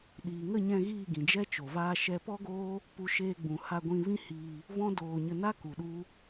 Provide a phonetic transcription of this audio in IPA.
ɗiː˨ŋə˦˨ɲɛ̃˧ ɣiː˦˨ɡĩ˨d͡ʒɛ˦t͡ʃo˨ vaː˦ʃɛ˦ pɔ˦ɡoː˦ | pu˧ʃeː˧ɡ͡bũ˨ ha˧ɡʷĩ˧vĩ˦hiː˧ | vɔ̃˦doː˧ɲə˧ na˦ ku˨ɗu˦

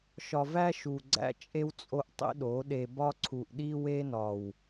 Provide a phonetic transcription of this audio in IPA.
ʃɒ˨væ˦ʃu˨ɡ͡ǀæ̰˦ t͡ʃʼe˦wt͡sʼo˦ʔtˤḭ˦ɗo˨˦ ɗe˨bɒ˦ǀʰu˨ʔɗi˦ we˦nɒ˨w

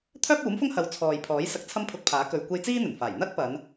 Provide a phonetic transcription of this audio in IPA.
t̪ʰœː˥p̚uː˨˥mfʊ˥ŋhɐ˨˧w t͡sʰɔː˨jpʰɔː˨˥j sɐ˧k̚t͡sʰɐ˥mpʰʊ˧k̚pʰaː˨˥ kɵ˨ɥkʷe˧j t͡siː˥n̪ɵ˨˩nfaː˨˩j n̪ɐ˥t̚pɐ˨˧n

